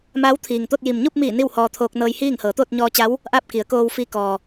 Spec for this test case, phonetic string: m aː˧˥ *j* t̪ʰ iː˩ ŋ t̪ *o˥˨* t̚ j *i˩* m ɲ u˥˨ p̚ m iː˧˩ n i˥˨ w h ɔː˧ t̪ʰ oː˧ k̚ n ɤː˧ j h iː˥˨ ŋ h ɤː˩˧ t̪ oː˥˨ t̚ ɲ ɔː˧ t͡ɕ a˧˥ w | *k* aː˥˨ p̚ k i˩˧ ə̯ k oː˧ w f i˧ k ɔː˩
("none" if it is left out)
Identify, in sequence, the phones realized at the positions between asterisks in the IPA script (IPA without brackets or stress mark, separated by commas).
w, o˥˨, i˩, ʔ